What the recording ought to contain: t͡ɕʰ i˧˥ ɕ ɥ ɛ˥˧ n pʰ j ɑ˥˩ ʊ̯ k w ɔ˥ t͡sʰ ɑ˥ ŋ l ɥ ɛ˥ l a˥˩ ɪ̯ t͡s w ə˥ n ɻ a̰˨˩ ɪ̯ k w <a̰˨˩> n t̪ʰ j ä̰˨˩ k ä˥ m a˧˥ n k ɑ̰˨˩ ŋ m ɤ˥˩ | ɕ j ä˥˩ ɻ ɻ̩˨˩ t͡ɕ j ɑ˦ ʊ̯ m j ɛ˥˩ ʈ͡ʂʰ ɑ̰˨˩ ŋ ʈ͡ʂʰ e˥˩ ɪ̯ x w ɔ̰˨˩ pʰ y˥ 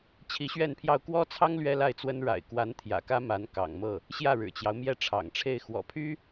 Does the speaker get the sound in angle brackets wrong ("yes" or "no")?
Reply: yes